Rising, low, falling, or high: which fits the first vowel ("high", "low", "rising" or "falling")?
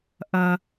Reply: low